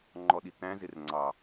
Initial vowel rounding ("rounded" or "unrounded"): rounded